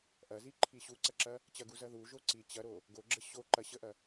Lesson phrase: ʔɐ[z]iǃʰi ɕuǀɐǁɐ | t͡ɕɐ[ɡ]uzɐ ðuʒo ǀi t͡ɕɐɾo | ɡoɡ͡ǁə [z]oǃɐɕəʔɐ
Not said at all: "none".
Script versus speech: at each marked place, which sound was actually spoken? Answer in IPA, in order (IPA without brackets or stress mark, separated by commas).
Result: z, ɡ, ɕ